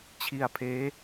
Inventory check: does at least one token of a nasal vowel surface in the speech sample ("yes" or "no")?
no